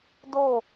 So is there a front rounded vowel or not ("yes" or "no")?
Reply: no